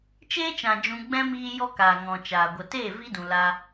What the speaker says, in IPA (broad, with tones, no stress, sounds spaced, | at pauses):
t͡ʃ eː˦ t͡ʃ ã˨ d͡ʒ ũ˧ ɡ͡b ɛ̃˦ m iː˦ j ɔ˦ k aː˨ ŋ ɔ̃˨ t͡ʃ aː˨ ɡʷ ə˨ t eː˦˨ v i˦ d ũ˨ l a˧